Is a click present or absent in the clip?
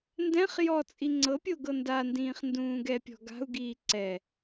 present